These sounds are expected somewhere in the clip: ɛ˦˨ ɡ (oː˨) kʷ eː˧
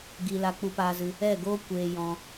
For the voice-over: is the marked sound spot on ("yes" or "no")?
no